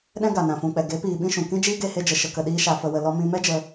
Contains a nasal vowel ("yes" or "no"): yes